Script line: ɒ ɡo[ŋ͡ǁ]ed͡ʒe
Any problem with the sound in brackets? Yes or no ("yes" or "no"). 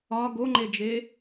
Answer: yes